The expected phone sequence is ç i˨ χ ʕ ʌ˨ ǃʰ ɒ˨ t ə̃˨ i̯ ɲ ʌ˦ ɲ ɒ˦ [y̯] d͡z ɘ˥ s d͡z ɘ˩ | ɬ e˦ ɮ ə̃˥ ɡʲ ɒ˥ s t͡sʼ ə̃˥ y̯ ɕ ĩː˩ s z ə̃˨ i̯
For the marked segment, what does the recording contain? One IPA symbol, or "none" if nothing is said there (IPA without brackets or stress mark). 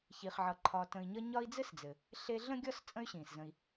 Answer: i̯